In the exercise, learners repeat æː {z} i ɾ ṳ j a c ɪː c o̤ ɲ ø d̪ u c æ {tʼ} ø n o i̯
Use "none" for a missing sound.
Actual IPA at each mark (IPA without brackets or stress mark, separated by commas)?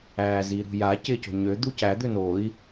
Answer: z, d̪